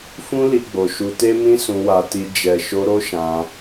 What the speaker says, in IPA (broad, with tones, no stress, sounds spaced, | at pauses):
f ũ˦ l i˧ ɡ͡b o˨ ʃ u˧ t e˦ m ĩ˦ s ũ˧ w a˧ t i˧ d͡ʒ ɛ˨ ʃ o˧ ɾ o˦ ʃ ã˧